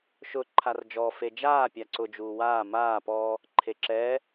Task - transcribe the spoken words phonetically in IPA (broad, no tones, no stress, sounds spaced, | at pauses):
ʃ ʊ ǃʰ a r d͡ʒ ɔ f e d͡ʒ aː pʲ a ǀ ʊ d͡ʒ uː w aː m aː p ɔ | ǃʰ e ǁ ɛ